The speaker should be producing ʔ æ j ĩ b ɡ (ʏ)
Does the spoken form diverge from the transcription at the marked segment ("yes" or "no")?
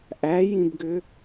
no